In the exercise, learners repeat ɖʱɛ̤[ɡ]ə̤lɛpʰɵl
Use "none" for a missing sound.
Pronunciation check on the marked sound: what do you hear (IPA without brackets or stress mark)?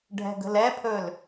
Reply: ɡ